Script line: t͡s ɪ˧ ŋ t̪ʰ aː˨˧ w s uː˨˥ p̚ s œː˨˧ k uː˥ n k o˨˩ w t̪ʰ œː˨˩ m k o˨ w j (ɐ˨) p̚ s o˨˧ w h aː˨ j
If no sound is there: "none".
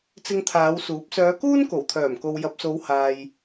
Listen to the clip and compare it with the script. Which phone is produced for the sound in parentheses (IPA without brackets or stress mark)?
ɐ˨